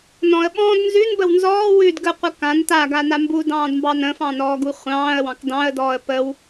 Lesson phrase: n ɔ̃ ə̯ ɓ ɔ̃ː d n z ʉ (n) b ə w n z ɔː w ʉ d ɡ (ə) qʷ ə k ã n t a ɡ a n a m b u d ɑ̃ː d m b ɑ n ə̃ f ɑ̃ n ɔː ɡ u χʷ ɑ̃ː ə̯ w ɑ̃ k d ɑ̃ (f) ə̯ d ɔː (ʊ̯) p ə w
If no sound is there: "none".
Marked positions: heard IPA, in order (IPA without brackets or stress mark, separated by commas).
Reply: n, ə, none, ə̯